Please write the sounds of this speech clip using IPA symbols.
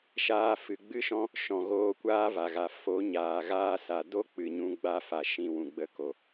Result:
ʃaː˧fɨ˨ ɡ͡bɨ˦ʃɔ̃˦ | ʃɔ̃˨ɣoː˧ kʷaː˦va˨ɣa˨ fo˨˦ ɲaː˨ɣaː˦sa˨ do˦ k͡pɨ˨ɲũ˧ ɡ͡ba˦fa˨ ʃĩ˨ wũ˨ɡ͡bə˧ ko˨

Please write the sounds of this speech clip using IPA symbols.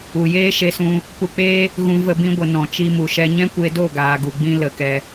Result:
u˨jeː˦ ʃe˧sũ˧ | pu˧k͡peː˦ | ɣũ˧və˧bĩ˧ɡʷə˨ nɔ̃˨t͡ʃi˧mu˨ʃɛ˧ ɲɛ̃˦kʷe˧do˦˨ ɡaː˨ɡu˨ɡ͡bĩ˧ lə˨ kɛ˧

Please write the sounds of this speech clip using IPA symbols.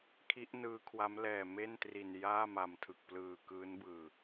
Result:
kʰi˦˥ʔnɯː˦˥kʰwa˦˥m lɛː˨˩me˥˩ntri˨˩n jaː˥˩ma˨˩mtʰɯ˨˩k̚plɯː˨˩ kɯː˦˥nbɯː˨˩

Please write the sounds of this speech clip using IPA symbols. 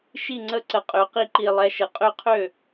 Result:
ʃi˥˩ŋ͡ǀə˦˥ ǀə˨˩qʼø˩˧qi˧ǃi˨˩ lˠɛ˩˥ʃə˩˥ qʼø˦˥qʰø˥˩

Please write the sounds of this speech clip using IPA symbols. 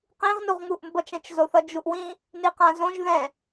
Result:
qĩʁnuʁŋuʔ mbʌt͡ʃɛ̃t͡ʃzoθʌ d͡ʒuʔwĩ | niqãzõʒ ðɛ̃

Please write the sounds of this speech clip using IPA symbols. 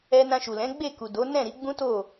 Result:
ɛ˧nã˧ʃu˨lɛ̃˨˦ ɡ͡be˦˨ku˨do˨˦ nɛ̃˦˨ɾi˨˦ ɡ͡bũ˦to˦˨

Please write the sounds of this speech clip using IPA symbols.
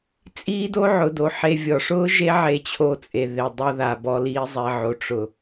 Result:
t͡sʼiː˦do˦ ʕʊ˨do˨ ħe˧vʲɔ˨ʂʊː˦ ʒe˦ʕe˧t͡ɕʰo˧t͡sʼe˨ ðe˨dˤʊ˧ ða˨bɔ˧liː˧zˤe˨ ʕo˨ʈ͡ʂʊ˨

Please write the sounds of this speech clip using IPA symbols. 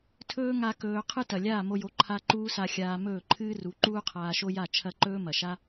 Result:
tʰɵː˦ ŋa˧ kɵː˧ qʰɨ˦tɐ˨ lʲaː˦˨mo˧jo˨˦ ǃʰa˦ ǃuː˦sa˧ xʲaː˧mɵː˦˨ ǃʰɨː˦ru˨˦ ǃuː˦qʰaː˧ʃo˦ja˦˨ t͡ʃʰɐ˦˨ǃɵː˦mɐ˨ʃa˦

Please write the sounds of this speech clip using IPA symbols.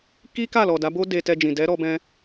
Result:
ki˦ka˦˨lɔ˨ da˨˦bo˦ de˧tɛ˧d͡ʒĩ˨ dɛ˨˦ɾɔ˧bɛ̃˧

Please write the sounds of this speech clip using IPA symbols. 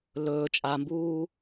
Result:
lɵː t͡ʃʼambuː

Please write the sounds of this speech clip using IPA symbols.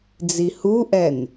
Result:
d͡zihuʔɛn

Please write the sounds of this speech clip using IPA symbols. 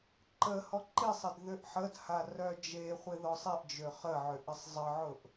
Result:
ǃəhɔ ǃisˤɪd ðʏʔħədha rœd͡ʒeχʷɪ ðɔsˤeʔd͡ʒø χəʕʏ ʔɪsˤzˤəʕʊʔ

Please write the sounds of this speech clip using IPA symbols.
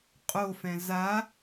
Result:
qʼofɛ̃ za

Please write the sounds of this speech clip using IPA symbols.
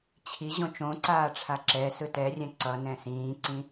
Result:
t͡ɕʰiʑõ t͡ʃõǀaː ʈ͡ʂʰaǁɛsɯ tɛrʲɛ̃ ǀʌ nɛ̃sĩːǀĩ

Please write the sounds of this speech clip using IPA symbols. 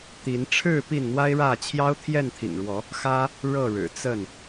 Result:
t̪i˨˦nʈ͡ʂʰɻ̩˥˨ pi˥˨nn̪wa˦ɪ̯ɻä˥˨ t͡ɕʰjɑ˦ʊ̯t̪ʰjɛ˥˨nt̪ʰḭ˨˩ŋɻwɔ˨˦ | xä˦ | ɻɤ˥˨ɻɻ̩˨˩t͡sə˥˨n

